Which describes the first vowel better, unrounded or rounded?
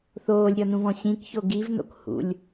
rounded